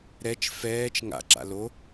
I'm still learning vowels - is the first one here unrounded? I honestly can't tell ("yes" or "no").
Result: yes